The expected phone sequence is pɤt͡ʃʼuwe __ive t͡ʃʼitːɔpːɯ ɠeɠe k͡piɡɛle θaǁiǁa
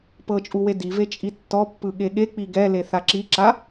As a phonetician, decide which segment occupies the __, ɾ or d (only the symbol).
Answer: d